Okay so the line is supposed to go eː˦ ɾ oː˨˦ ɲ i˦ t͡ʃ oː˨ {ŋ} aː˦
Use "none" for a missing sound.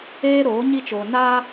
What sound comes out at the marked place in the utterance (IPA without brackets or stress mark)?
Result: n